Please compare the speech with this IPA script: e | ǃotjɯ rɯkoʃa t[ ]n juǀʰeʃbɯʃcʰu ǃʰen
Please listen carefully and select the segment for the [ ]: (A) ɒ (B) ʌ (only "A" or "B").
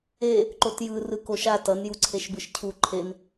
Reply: B